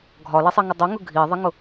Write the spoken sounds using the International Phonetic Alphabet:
ɡʱɒlɛsˤiŋə dˤʊŋʊ ɡʱiðˤiŋʊ

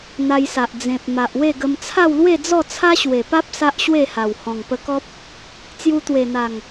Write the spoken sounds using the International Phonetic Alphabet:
n̪a˧jsa˨ʔ d͡zẽ˨p̚ ma˨ʔwe˥˧ɡə˧m t͡sʰa˥˧wlwe˥˧d͡zɔ˥˧ t͡sʰa˦ɕwe˨˩pa˦p̚ sa˦ʔɕwe˥˧ha˨˩w hɔ̃˨˩ŋpə˧kɔ˦p̚ | t͡sju˧t̪we˨˩n̪a˨˩ŋ

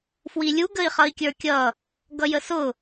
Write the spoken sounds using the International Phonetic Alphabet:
fwilʲu ɡəi̯χʌi̯kʲə˞kʲʌ | ɡʌjəsʊ

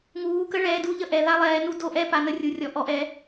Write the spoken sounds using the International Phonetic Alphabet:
ŋuː˨˦ kə˦ ɭɛː˨˦du˦ʎə˦ ʔɛ˨˦ ða˦lˠɛː˨˦ nu˦do˦ʔɛ˦ pa˨˦nə˦rʲu˨˦rʲɔ˨˦ ʔɔ˨˦ʔɛ˨˦

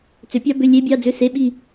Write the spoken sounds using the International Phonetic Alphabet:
t͡sʏ˨˩˦pʲɑ˦˥ bʏ˧˥˧ lʲe˦˥bʲɑ˧˥˧d͡zʏ˧˥˧ se˧˥˧ɓi˥˧

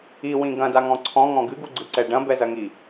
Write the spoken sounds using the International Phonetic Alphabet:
iwĩ ɡɐ̃daŋɔ̃ ǀʰɔ̃ŋɔ̃ ɡɨɡuɡ͡ǀɨǀɛ ɖɐ̃bɛzɐŋi

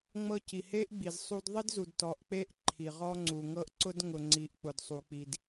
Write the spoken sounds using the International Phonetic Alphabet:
ŋ͡mɤ˦ ci˨he˦ʔɡ͡bi˨z sˤu˦d ðˤi˦dzu˨d tɔ˨ʔk͡pe˦˨ʔ ǃʰi˨ʁɔ˦ ŋ͡ǀu˨ŋɤ˦ʔ ǀʊ˦dŋʊ˨ŋ͡ǀi˨ʔ k͡pʊ˨dsˤu˨k͡pi˨d

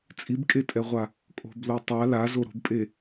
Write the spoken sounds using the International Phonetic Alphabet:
t͡sʼibkʼetʼɛʁʷa | kʼo̤blo tˤa lazo ɾo̤bpʼe

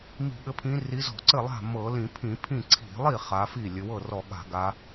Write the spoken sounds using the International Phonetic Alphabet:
mi̤˧˩˧ɠɘ˨˦pʰĩ˨˦ ri˨˦zɔ̤˧˩˧ ǀɘ˥˩lˠa̤˥˩ mɤ˧˩˧ lĩ˧˩˧pʰĩ˧˩˧pʰĩ˥˩ ǀʰi̤˧˩˧lˠi˥˩ χa˨˦fi˥˩ lʲɘ˨˦ wɤ˥˩rɔ˧˩˧ɠa̤˧˩˧ ɡa˨˦

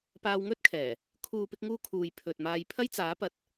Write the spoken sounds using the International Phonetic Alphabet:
paː˧wŋɵ˥t̚kʰɛː˨˩ | kʰuː˨pɪ˧k̚ŋuː˧ kʰuː˨jpʰɵ˨t̚maː˧j pʰɐ˥jt͡saː˨˥pɐ˨t̚

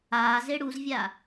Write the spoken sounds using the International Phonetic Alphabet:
aːze ɽuzvʲa

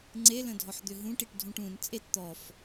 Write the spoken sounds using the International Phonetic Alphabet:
ŋ͡ǀelə̃dʱɔħ d̪øɦũʈiʈ dʱũʈũn t͡sʼet t̪ɔf

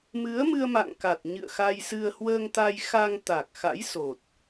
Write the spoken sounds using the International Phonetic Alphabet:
mɨ˨˦ə̯mɨ˧ə̯ma̰˧˨ŋ ka˨˩t̚ ɲɨ̰˧˨ə̯xa˧jsɨ˧ə̯ hwəː˧ŋt̪a˧jxa˧ŋt̪a˨˩k̚ xa̰˧˥jso˨˩t̚

